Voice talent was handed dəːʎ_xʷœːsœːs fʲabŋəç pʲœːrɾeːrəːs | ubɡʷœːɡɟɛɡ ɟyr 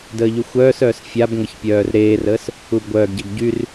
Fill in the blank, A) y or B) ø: A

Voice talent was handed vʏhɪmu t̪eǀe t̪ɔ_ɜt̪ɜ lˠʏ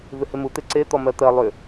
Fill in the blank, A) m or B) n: A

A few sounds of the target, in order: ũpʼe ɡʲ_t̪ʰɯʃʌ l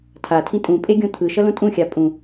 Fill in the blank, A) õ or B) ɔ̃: A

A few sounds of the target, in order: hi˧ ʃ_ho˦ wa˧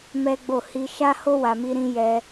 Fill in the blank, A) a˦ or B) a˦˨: A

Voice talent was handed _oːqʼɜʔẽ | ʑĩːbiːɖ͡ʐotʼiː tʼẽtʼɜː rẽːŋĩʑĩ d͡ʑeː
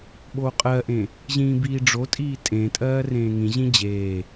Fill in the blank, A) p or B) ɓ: B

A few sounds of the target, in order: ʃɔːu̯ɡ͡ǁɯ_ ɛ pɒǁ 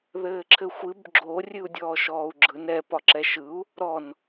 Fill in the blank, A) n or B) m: A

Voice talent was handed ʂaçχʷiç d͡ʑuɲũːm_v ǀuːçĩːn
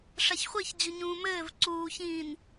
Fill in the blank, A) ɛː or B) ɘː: B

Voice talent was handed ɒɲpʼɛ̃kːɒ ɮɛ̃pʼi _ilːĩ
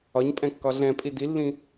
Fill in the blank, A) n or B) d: B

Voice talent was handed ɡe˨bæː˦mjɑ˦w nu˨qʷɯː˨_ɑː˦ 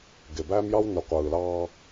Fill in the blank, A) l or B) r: A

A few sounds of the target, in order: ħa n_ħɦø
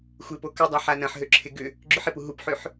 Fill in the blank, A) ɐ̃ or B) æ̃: A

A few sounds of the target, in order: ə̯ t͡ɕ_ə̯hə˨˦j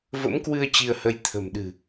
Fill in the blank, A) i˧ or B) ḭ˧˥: A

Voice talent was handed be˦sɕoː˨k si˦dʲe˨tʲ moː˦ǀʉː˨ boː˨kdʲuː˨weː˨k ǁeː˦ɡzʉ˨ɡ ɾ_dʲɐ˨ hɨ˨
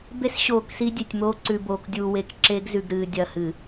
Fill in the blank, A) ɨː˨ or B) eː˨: A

